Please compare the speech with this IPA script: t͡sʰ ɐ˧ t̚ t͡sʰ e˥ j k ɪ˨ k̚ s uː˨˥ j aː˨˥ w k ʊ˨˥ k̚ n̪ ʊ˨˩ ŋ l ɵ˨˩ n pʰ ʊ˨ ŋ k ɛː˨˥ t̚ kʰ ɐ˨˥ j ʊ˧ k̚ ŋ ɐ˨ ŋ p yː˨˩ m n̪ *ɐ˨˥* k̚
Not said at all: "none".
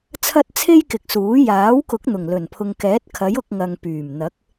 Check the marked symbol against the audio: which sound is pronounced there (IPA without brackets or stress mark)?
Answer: ɐ˨˥